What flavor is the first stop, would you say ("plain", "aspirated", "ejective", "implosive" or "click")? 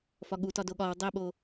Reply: implosive